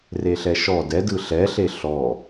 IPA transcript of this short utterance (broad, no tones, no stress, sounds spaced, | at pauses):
r e ɬ ɛ ʃ ɔ d ɛ d ɯ ɬ ɛ ɬ e ɬ ɔ